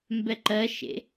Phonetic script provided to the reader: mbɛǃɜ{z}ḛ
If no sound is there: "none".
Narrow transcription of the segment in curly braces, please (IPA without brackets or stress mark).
ʃ